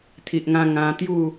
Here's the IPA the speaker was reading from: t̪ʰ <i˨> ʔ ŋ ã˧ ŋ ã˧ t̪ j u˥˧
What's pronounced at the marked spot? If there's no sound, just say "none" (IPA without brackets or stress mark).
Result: i˨